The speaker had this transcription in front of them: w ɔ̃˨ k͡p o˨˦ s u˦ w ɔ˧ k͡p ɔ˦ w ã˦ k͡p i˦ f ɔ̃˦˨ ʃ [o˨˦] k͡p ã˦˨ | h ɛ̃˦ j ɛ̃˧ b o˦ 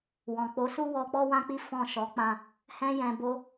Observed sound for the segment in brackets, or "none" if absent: ɔ˨˦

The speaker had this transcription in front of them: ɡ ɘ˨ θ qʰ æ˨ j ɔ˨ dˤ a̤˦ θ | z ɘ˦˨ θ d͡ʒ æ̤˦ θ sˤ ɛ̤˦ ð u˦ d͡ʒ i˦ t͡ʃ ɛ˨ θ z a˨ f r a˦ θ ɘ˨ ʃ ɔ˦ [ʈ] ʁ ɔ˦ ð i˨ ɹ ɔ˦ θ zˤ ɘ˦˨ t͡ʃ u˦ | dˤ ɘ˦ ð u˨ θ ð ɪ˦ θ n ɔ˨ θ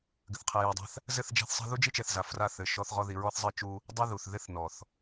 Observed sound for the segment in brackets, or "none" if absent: θ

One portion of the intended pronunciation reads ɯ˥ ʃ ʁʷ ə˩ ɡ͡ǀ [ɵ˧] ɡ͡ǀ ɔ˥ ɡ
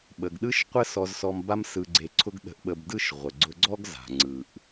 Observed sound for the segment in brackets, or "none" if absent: ʊ˧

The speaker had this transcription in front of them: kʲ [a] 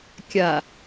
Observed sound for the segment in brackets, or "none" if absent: a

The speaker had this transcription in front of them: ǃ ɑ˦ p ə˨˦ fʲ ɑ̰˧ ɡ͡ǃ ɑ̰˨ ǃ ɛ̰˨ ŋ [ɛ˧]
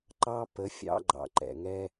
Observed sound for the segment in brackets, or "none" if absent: ɛ˧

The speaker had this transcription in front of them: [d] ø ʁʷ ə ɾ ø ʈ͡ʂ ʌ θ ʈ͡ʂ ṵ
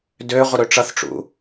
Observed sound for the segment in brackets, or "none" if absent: d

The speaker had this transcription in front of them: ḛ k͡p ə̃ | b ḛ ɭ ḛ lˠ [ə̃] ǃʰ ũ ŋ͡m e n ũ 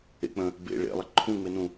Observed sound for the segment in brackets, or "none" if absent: ə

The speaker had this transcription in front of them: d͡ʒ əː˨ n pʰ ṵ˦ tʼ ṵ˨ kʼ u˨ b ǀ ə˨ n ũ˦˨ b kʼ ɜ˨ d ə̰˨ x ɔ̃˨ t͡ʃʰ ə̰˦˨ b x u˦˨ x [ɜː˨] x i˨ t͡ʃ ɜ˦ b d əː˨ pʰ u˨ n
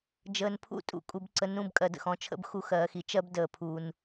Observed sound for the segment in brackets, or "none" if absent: ɜː˨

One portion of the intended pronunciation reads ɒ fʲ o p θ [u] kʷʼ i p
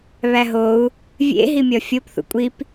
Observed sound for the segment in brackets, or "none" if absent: ṵ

